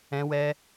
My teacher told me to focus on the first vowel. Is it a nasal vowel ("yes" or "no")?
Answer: yes